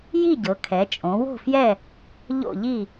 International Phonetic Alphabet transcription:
j i˥˨ ɟ ɤ˩˧ kʰ ɛ˩˧ t͡ʃʼ õ˩˧ w o̤˥˨ f j ɛ˥˨ | ʎ o̰˥˨ ʎ i˥˨

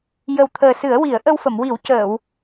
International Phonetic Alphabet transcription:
j ə˨˩ w t̪ʰ əː˨˩ s ɨ˨˩˦ ə̯ w i˨˩˦ ə̯ ʔ ə˧ w f ə˨˩˨ m w i˨˩˦ w c əː˨˩˨ w

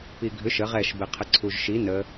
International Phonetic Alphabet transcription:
p i ɡʱ ʏ ʃ ə ʁ ɛ ʃ b ɛ qʰ ə ǀʰ u ʒ ʃ i n ə

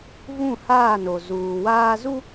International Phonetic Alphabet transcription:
v ũ˦˨ h aː˦˨ n o˨ z uː˨ w aː˦ z u˦

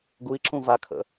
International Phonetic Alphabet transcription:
ɡ u i̯ ǁ ũ v a kʰ ə̰

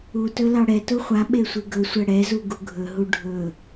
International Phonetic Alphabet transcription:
u t ɵ l ɑ ɽ ɛ t u χʷ a ɓ e sʷ i ɡ ɵ sʷ ɛ ɽ ɛ z u ɡ u ɡʱ ɵ ɦ u ɖʱ ɵ

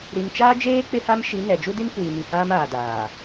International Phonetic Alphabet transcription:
ɾ i˨ n t͡ʃ aː˦ d͡ʒ eː˦ k͡p ɪ˦ h a˦ m ʃ i˨˦ n ɛ˨ d͡ʒ u˦ d i˦ n kʷ iː˨ m i˨ h aː˦ m aː˨ d aː˨

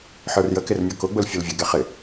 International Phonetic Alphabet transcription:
ħ ə˞ r j ə k ɪ r mʲ ɔ k ʊ ɡ͡b ʊ l fʲ ʊ l vʲ ə ɡ ɛ χ ɪ

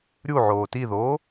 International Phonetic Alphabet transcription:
ɾʲ u ʕ oː t i ð oː

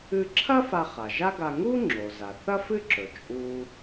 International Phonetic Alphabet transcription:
ɨ˧ ǁʰ ɐ˥ f a˧ χ a˩ ʒ a˥ ɡ a˧ ŋ u˥ ŋ͡ǁ o˩ z a˩ θ ɐ˥ f ɨ˥ ǁ ɵ˩ t͡ʃʼ u˥

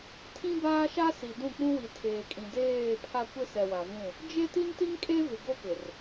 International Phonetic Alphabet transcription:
tʰ ĩ˦ b aː˦ ʃ a˦ s i˨ d ũ˦˨ k͡p ũ˦ w i˨ tʰ eː˨ kʼ ĩ˨ d eː˦˨ pʰ a˦ kʷ ɪ˦ s ɛ˨ w a˨ v ũ˦˨ | d͡ʒ e˦ t i˦ n t i˦ ŋ kʼ e˦ v ɪ˨ ɡ o˦ p ɪ˨ r

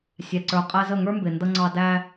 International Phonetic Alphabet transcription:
sʲ æ˨ ǀ ə˞˨ qʼ ɛ˧ z ə˦˨ ŋ ə˞˦ m b ɪ˨ n d ʌ˧ ŋ͡ǀ ɑ˧ d æ˧

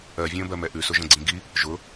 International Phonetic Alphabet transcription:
ɜ vʲ ə̃ː b ɜ m ɛ ʔ ʉ s ʊ ʒ ə̃ ɡ͡ǀ ĩ ɡ i | ʒ ʊ

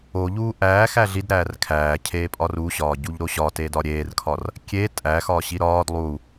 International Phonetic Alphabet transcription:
o ʎ uː ʔ æː x æ ɮ i d ɾ æː r kʰ æː cʰ eː pʼ ɒ r u ɕ ɒː ɟ u ʎ ɾ o ɕ ɒ t eː d ɒ ɾʲ eː r kʰ ɒ r | kʲ e tʼ æ x ɒː ɕ i ɾ ɒː d lˠ u

